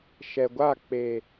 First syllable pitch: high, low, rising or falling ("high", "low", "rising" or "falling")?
low